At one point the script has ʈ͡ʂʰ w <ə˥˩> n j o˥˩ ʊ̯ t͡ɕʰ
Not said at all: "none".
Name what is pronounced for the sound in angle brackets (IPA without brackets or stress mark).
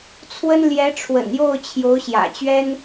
ə̰˨˩